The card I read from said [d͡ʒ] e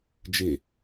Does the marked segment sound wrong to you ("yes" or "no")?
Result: no